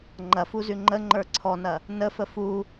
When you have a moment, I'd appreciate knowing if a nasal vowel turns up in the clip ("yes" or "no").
no